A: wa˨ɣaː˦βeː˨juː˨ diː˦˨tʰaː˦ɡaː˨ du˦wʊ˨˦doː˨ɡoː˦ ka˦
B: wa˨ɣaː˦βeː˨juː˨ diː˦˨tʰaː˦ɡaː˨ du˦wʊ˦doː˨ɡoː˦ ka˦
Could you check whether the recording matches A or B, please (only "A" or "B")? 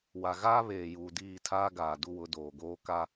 A